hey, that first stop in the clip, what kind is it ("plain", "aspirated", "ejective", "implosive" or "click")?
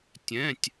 plain